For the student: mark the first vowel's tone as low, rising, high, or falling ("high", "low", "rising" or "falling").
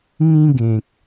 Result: high